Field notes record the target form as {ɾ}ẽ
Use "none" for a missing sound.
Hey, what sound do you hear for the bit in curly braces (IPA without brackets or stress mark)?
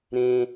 ɾ